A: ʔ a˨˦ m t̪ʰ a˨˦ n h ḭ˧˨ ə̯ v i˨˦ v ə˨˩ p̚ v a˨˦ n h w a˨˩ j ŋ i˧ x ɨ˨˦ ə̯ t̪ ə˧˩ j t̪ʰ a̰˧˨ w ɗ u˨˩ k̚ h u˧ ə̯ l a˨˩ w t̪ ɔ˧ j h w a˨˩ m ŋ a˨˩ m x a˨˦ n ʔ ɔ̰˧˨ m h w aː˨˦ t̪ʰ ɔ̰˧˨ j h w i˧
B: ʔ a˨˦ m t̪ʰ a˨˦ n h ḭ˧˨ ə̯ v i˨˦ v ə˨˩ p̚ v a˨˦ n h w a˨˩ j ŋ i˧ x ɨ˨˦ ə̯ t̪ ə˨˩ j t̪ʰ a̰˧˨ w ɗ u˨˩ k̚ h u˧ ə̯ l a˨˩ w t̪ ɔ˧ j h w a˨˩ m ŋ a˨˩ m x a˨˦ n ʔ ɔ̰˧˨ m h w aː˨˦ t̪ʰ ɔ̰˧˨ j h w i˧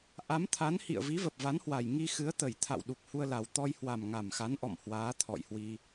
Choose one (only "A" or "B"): B